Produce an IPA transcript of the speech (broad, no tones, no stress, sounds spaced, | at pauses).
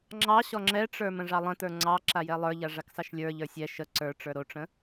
ŋ͡ǁ ɑ ɕ ɔ ŋ͡ǁ ɛ ʈ͡ʂ ə˞ m ə̃ ʐ ɑ lˠ ə̃ t ə˞ ŋ͡ǀ ɑ ǁ a j ɛ lˠ ə˞ ʎ a ʐ a k s ɑ ʃ lʲ ə˞ ʎ ə˞ sʲ ɛ ʃ ə ǀ ə˞ ʈ͡ʂ ə˞ ɾ o ʈ͡ʂ ə̃